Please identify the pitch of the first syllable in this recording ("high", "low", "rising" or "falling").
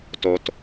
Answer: low